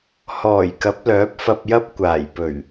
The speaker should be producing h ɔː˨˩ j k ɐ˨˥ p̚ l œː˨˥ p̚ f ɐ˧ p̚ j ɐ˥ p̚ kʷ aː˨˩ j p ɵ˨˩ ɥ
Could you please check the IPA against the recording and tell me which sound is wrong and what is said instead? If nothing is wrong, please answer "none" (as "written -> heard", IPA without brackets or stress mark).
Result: none